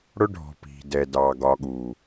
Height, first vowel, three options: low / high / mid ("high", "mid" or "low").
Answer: high